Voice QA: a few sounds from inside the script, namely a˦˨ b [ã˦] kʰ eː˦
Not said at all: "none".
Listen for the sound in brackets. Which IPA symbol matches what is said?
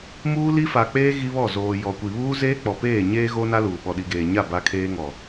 a˦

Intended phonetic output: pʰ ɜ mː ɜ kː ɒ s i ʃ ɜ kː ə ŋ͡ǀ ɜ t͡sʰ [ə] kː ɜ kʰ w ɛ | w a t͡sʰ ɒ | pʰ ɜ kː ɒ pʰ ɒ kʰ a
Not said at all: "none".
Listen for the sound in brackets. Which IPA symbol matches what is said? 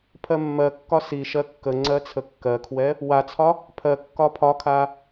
ə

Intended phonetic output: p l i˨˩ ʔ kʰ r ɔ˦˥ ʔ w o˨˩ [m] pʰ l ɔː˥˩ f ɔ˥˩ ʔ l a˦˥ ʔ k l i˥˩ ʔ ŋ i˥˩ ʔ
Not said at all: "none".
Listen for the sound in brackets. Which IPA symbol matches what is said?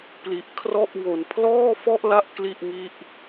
n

